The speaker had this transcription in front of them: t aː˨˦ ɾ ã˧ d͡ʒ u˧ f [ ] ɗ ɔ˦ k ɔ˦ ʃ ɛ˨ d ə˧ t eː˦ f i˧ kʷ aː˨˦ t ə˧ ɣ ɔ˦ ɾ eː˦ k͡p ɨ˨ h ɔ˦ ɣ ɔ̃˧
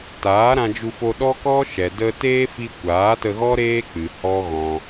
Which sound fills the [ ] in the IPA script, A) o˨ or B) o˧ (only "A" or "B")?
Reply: B